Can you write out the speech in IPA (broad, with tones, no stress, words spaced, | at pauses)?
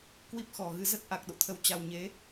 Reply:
kwi˦˥p̚xɔ˨˩ɣɨ˧ zə˦˥t̚ʔa˨˩k̚ɗo̰˧˨t̪ʰə˨˦w t͡ɕa˧w ɲe˨˦